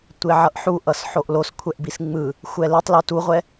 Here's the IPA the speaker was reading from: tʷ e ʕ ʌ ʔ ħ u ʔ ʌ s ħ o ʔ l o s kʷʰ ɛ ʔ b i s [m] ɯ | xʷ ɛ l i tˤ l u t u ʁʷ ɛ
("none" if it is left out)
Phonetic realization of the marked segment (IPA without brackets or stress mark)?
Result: ŋ͡m